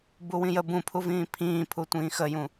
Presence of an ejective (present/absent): absent